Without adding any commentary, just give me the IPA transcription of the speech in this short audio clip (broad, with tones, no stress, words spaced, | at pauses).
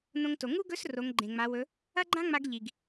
nõ˧ŋto˩ ŋu˥ɡɵ˧˥s ro˩˧ŋɡ͡ǃẽ˩ŋ͡ma˩˧wɵ˩˧ | ɐ˥ɡ͡ǃã˥ŋ͡ma˧ɡ ʎi˩ɡ